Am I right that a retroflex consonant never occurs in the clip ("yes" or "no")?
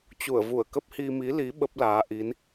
yes